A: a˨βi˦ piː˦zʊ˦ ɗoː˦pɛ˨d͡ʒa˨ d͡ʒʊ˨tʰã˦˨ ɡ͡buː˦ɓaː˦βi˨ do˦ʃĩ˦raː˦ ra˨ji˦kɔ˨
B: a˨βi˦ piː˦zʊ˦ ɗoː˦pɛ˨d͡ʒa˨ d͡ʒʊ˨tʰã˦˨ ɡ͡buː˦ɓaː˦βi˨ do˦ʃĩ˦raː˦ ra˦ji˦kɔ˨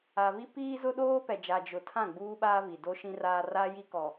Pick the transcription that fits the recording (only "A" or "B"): B